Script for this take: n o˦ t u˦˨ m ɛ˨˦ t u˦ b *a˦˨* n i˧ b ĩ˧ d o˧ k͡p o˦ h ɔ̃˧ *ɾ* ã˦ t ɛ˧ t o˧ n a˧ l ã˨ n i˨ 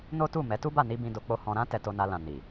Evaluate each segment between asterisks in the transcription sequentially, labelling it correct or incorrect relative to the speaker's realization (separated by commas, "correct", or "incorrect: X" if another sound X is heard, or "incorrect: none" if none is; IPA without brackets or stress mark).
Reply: correct, correct